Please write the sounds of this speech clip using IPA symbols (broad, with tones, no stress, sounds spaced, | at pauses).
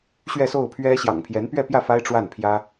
ɕ ɥ ɛ˥˧ s o˥˩ ʊ̯ pʰ ɥ ɛ˥ ɕ j ɑ̰˨˩ ŋ pʰ j ɛ˧˥ n p ɥ ɛ˥˧ p j ä˥˩ f a˥ ɪ̯ ʈ͡ʂ w a˥˩ n pʰ j ä˥